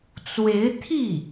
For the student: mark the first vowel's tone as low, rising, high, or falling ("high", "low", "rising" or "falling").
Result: rising